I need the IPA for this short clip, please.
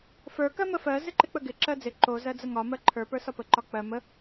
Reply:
f ə˞ k ɜ m ə f ɜ z ɪ ǃ ɪ k͡p ə ɡ ɪ ǁ ɜ d͡z ɪ ǃ o z ɜ d͡z ə ŋ ɒ m ɜ ǃʰ ə˞ p ə˞ s ɒ p ə ǃ ɒ k͡p ɜ m ə

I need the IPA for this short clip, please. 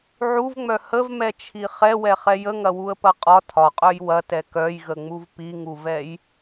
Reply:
ʕ u v ŋ͡m œ h ə v m ɛ t͡ʃʰ i χ ɛ w ɛ χ ɛ j ə ŋ ɐ w u ə̯ p ɐ qʼ ɒ tʰ ɒ qʼ œ j w ɐ t ɛ k œ j ɣ ə ŋ͡m u v p i ŋ u v ɛ j

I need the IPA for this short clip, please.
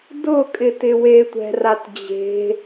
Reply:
d ʊ kʼ ɪ t ɪ w e tʷ ɛ̤ r a t d͡ʑ e̤

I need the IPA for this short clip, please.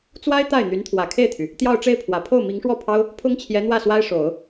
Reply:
t͡s w a˥ ɪ̯ t̪ a˥˩ ɪ̯ n̪ y˧˥ n t̪ʰ w ä˨˩ kʰ e˥˩ ɪ̯ t̪ʰ y˩ | t̪ j ɑ˥˧ ʊ̯ ʈ͡ʂ e˥˩ ɪ̯ pʰ w ä˨˩ pʰ o˥˩ ʊ̯ m i˧˥ ŋ ʂ w ɔ˥˩ pʰ ɑ˥ ʊ̯ | pʰ ʊ˥ ŋ t͡ɕʰ j ɛ˧˥ n̪ w ä˥˩ s w a˥ ɪ̯ ʂ o˨˩˦ ʊ̯

